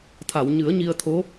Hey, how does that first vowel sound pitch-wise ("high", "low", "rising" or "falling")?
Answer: low